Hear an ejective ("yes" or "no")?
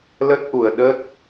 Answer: no